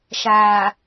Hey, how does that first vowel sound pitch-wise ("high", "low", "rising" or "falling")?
low